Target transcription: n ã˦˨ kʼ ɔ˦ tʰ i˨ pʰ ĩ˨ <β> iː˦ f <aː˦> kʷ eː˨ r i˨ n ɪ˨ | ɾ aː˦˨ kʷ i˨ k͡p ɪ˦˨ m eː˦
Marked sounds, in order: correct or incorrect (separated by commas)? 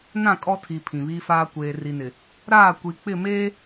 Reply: correct, correct